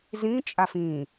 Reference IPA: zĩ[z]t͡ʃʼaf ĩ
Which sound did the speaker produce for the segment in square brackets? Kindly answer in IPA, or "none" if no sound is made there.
none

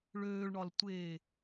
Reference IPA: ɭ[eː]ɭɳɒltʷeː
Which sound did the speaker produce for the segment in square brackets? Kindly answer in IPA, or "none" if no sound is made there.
øː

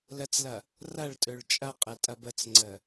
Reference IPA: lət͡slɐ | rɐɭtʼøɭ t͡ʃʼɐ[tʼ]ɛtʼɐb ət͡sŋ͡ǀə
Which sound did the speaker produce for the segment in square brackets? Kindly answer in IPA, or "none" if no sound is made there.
qʼ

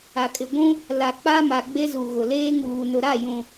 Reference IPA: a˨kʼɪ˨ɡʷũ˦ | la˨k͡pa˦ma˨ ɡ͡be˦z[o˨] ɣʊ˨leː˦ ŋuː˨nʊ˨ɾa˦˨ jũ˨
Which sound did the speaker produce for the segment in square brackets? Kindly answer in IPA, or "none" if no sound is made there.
u˨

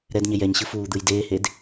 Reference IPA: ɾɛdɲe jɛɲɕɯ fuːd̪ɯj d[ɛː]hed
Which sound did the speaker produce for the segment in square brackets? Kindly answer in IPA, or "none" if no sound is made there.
eː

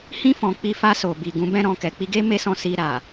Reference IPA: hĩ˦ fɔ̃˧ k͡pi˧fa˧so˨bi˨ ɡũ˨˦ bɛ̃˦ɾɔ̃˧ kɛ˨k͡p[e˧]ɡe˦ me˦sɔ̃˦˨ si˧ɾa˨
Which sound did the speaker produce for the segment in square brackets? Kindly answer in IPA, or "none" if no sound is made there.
i˧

